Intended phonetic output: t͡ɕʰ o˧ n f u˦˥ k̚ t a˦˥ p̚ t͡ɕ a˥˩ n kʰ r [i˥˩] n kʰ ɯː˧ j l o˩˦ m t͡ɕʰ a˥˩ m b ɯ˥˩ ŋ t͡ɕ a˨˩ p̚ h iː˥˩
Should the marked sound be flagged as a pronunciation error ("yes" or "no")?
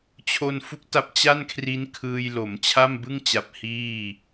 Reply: yes